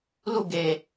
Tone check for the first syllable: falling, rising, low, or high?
falling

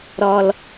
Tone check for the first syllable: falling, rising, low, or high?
low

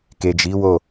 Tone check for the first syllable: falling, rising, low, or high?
low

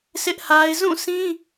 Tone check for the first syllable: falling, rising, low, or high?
high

